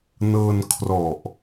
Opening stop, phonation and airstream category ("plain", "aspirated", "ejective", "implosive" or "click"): aspirated